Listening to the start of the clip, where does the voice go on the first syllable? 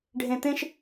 low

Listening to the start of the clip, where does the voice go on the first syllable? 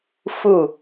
falling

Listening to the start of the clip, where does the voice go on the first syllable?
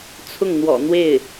falling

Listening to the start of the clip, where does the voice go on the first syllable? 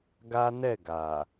high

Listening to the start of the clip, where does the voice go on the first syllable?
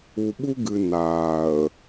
low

